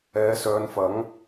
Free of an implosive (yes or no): yes